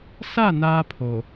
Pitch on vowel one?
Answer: falling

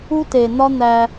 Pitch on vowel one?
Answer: high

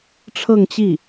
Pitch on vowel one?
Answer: falling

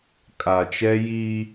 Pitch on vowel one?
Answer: low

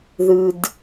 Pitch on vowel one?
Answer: low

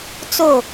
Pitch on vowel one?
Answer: falling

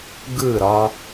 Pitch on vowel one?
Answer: falling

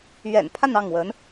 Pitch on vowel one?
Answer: low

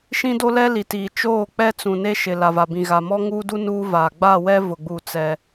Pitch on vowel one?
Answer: high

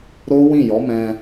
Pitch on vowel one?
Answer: high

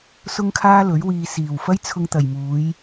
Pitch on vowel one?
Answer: high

